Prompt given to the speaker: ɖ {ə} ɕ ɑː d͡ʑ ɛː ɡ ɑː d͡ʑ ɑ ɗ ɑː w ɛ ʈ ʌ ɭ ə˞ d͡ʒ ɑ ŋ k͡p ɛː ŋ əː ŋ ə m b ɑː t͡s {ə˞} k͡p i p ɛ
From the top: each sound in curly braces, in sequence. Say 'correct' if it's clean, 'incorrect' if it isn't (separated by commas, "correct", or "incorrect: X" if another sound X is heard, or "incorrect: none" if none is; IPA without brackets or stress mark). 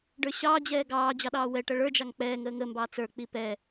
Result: incorrect: ə˞, correct